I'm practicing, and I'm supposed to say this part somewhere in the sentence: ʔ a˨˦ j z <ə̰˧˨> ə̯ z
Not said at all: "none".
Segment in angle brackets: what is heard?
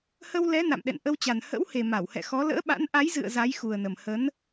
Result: ɨ̰˧˨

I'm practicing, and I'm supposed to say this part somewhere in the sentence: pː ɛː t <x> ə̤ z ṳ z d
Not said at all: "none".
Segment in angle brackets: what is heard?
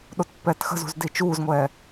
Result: x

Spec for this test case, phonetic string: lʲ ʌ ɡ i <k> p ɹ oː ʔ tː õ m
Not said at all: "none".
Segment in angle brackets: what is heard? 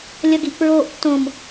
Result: ʔ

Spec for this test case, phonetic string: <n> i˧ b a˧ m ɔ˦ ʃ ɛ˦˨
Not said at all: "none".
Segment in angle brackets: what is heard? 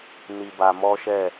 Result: n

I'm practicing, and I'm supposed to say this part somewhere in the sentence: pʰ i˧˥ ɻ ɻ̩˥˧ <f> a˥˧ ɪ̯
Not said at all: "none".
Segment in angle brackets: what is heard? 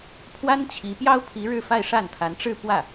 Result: f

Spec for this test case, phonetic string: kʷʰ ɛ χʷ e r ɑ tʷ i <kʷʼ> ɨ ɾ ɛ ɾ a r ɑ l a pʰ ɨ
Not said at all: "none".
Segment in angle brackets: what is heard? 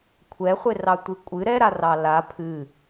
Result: kʷʼ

